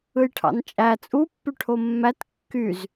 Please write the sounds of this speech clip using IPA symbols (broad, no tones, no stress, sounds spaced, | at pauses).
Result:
ɯ j ʈʰ ɑ̰ n t͡ʃʼ æ t͡sʼ u pː y ʈʰ o mː æ t kː y z